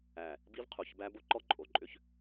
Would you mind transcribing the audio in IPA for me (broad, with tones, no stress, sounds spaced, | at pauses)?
æ˨ | b i˦ v qʰ u˨ ç b æ˦ b o˦ ǃ ɔ˦ ǃʼ o˨ ǃʼ ʏ˦ ç